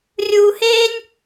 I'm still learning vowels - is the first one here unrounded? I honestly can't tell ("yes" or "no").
no